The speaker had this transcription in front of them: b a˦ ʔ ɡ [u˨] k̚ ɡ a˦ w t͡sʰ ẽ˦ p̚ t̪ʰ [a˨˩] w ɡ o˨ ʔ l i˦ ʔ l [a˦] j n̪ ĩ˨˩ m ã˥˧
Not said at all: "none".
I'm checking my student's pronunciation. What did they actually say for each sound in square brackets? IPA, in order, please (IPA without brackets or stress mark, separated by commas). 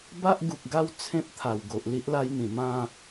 u˨, a˨˩, a˦